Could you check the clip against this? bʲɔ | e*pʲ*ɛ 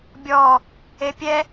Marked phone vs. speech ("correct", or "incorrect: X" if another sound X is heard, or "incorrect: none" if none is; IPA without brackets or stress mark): correct